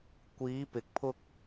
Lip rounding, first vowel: unrounded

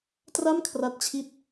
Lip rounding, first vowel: unrounded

